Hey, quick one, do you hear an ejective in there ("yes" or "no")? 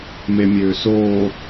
no